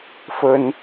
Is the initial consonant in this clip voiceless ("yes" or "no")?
yes